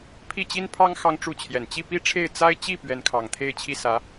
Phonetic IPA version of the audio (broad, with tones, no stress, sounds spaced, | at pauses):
pʰ i˥˩ t͡ɕ i˥ n pʰ ɑ˥ ŋ x ɑ˥ ŋ ʈ͡ʂ u˥˩ t͡ɕʰ j ɛ˨˩ n t͡ɕ i˥˩ p i˥ ʈ͡ʂʰ e˥˩ ɪ̯ t͡s a˥ ɪ̯ t͡ɕ i˥˩ p ɥ ɛ˧˥ n kʰ ɑ˨˩ ŋ t̪ʰ e˥˧ ɪ̯ t͡ɕʰ i˥˩ s ä˧˥